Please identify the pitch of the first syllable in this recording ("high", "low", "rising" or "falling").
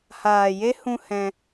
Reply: low